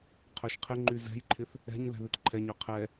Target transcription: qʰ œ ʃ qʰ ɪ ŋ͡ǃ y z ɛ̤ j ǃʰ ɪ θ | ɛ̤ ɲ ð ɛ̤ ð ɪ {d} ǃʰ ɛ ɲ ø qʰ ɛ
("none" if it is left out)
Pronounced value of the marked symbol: t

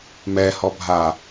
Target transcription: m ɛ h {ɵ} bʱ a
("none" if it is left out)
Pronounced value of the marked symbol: ɔ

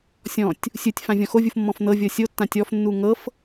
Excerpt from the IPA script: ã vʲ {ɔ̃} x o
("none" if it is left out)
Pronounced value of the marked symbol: ɔ̃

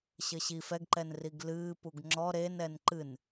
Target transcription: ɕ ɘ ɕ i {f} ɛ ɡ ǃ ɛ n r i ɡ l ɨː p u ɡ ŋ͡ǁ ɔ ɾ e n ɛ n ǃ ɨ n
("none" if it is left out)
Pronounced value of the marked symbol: f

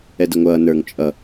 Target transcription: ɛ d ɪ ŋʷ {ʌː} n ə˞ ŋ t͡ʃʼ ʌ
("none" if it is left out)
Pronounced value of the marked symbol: ʌː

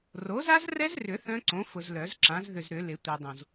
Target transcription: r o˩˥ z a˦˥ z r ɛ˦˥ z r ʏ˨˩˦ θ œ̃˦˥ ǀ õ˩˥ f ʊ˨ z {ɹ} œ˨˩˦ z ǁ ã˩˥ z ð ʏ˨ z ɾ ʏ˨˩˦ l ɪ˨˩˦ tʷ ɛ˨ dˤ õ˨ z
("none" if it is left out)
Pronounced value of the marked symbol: l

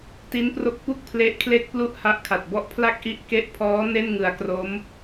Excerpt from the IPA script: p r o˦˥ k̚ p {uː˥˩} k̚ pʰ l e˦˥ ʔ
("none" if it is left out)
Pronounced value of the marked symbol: u˥˩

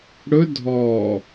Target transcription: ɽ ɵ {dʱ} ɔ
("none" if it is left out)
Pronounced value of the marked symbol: dʱ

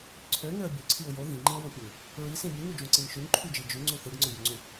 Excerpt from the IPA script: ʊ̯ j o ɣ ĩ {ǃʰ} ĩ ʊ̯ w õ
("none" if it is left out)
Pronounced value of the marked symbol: ŋ͡ǃ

